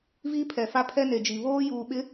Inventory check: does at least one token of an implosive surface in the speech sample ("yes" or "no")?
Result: yes